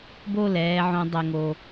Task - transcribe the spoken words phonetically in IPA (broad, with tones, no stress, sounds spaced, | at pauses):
b o˦˨ l ɛː˧ ʕ õ˧ dˤ ɛ˧ ŋ o˧